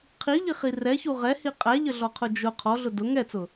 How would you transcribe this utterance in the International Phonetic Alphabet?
qʰiʎiχi rɛçu ʁɛhi qʼæʎəɮɔqʰʊ d͡ʒʊ qʰɔɮʊ dʊ ŋɛt͡sʊ

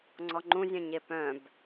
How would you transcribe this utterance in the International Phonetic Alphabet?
ŋ͡ǀɔŋ͡ǃũ zʲœ̃ɲepœ̃b

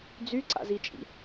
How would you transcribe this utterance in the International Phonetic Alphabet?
d͡zyǀa̰zit͡ʃʼḭ

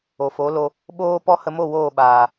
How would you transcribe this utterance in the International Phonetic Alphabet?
o˨fo˨˦lo˧ | ɓoː˦ pɔ˦hə˧mo˦˨ woː˦˨ɓaː˨

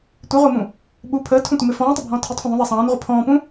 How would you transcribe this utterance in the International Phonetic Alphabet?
tʷiʁʷəːmũ | ɓu pʰəːtʰũtʷəmɪ fɔ̃ːtˤʊbʱɔ̃ː tʰitˤfə̃ ðˤũðˤæ sˤɑ̃ːnʁʷə pʰɔ̃ːpũ

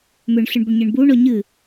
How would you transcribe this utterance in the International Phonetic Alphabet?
mʏɳɬɨɳbʏɳɲɨɳ buɳɔ ɲɨ

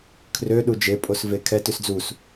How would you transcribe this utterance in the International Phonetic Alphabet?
kʰrø ɗud͡ʒe pʼosvekʰɛ tʉsd͡zus

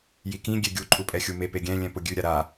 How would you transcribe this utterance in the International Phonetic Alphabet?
jikĩ ɡʲeɡʲu ǃʼupʼɛxʲume peɡʲɛ̃ lʲɛ̃pʊɡʲʉ ɾʲaɾa

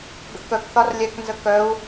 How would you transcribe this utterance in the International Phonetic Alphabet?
ɡə̰kœkθɒr lʲɛknzə kœu̯

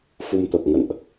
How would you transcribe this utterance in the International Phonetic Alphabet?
fu˧mt̪ə˨˩p̚ ŋə̰˧˨nʔ

